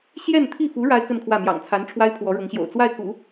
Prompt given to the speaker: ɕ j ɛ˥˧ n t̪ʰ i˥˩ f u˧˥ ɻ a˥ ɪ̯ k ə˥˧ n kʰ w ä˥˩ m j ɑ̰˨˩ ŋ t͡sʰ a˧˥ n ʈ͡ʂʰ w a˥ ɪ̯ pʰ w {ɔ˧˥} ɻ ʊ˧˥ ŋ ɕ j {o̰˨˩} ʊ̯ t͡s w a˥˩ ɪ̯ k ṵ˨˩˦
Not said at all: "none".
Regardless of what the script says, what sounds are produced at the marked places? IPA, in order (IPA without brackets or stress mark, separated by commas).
ɔ˧˥, o̰˨˩